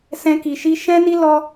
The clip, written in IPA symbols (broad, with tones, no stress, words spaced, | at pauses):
sɛ̃˧ ki˨ ʃi˧ʃɛ̃˦ni˦ lɔ˦